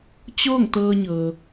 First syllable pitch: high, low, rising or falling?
falling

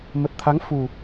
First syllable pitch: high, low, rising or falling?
low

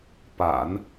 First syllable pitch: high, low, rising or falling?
low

